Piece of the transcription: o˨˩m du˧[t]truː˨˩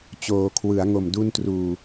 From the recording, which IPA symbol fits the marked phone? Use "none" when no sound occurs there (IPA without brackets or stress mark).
n